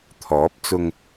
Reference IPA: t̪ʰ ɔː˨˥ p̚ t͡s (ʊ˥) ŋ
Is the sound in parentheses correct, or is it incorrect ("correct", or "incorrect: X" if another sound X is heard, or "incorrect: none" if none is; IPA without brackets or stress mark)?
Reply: incorrect: ʊ˧